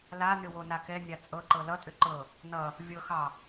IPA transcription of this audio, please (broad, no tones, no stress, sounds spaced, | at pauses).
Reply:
l a n ʏ w o n a k ɛ nʲ a t͡sʼ ɤ ǃ ɤ l ʌ tʼ ʏ ǃ ɤ | n ʌ | vʲ ɤ x ɑ